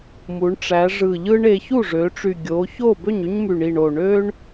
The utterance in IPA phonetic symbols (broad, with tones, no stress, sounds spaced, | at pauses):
m u˩˧ ɳ ʈ͡ʂ æ˩˧ ʐ ɯ˨˩ ʎ ɯ˦ ɳ e˩˧ ç u˥˩ ʐ ø˩˧ ʈ͡ʂ y˨˩ ɡʲ o˩˧ ç o˥˩ b ø˥˩ ɲ y˦ ɲ m y˨˩ ɳ i˨˩ ɳ o˨˩ ɳ ø˦ ɳ